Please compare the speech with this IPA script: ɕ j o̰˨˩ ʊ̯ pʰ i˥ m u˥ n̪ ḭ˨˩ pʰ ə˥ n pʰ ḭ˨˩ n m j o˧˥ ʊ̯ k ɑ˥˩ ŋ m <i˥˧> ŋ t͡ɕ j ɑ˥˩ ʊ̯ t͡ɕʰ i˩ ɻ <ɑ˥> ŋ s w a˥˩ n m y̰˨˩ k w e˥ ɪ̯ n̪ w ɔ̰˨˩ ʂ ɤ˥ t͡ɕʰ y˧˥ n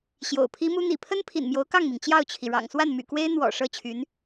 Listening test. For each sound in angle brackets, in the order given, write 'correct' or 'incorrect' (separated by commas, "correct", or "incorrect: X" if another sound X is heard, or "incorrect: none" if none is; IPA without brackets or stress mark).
incorrect: i˩, incorrect: ɑ̰˨˩